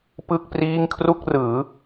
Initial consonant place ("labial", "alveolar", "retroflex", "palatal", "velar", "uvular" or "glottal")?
labial